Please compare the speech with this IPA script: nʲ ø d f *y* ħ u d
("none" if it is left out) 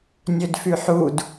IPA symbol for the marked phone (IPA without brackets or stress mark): y